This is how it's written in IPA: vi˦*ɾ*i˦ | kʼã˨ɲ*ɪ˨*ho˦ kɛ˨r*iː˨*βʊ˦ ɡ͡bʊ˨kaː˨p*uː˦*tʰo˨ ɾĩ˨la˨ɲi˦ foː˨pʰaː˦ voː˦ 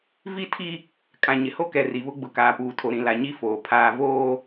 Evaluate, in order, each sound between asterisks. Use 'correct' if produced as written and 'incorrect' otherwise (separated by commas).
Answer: incorrect, correct, incorrect, incorrect